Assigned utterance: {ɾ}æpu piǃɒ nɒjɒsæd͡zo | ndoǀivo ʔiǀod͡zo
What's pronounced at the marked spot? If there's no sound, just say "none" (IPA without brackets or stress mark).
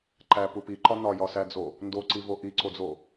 ǃ